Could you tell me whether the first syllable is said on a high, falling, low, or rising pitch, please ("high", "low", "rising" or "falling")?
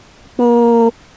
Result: high